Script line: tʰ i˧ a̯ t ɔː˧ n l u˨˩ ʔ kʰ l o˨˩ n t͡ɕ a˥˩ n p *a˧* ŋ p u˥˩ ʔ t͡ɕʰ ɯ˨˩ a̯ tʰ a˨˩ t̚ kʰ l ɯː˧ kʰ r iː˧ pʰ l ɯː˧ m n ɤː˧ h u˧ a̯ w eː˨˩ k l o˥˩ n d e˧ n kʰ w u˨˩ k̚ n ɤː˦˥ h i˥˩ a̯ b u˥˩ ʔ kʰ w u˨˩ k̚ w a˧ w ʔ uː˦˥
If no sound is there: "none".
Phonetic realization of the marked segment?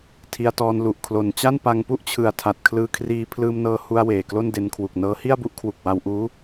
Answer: a˧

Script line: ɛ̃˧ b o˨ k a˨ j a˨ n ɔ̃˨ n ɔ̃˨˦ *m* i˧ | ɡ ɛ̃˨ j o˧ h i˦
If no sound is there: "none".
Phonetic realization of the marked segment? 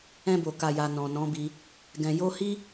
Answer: b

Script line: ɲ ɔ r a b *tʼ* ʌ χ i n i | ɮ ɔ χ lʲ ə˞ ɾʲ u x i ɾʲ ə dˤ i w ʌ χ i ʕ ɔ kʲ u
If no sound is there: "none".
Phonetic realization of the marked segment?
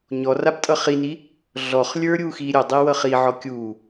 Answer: tʼ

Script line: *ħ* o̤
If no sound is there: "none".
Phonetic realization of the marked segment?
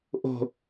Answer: ʔ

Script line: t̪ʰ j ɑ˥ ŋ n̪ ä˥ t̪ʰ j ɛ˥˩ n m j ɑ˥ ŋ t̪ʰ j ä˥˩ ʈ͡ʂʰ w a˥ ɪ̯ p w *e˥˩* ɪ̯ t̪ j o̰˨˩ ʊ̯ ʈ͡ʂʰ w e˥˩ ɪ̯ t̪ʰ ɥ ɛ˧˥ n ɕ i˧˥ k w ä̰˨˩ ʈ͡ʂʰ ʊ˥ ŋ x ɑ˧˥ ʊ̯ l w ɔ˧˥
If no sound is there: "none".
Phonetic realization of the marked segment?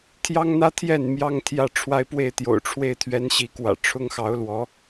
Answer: e˥˩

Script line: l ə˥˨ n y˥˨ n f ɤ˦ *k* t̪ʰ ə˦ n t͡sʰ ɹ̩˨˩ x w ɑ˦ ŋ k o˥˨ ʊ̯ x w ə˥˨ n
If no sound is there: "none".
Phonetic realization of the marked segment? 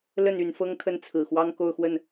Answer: ŋ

